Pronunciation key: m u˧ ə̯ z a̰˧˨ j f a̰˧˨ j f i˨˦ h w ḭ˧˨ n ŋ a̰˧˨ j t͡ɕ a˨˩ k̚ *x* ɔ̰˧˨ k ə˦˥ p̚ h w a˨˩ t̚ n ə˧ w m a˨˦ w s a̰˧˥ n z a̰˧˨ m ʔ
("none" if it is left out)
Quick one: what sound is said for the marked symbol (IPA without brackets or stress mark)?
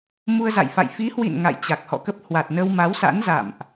h